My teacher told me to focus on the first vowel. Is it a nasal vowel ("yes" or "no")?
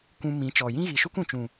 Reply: yes